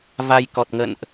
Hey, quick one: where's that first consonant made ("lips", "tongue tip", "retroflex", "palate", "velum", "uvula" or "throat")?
lips